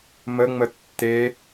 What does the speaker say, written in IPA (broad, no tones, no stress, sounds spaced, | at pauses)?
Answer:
m ə ŋ͡m ə tː e